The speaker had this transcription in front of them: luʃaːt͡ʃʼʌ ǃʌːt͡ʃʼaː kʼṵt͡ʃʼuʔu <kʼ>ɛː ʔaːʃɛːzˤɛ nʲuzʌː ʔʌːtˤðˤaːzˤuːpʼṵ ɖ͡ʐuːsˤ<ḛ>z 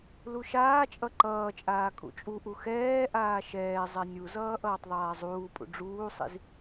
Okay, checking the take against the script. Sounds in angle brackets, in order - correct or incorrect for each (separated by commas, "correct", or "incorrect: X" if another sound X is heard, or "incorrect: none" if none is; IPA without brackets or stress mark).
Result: incorrect: x, incorrect: ḭ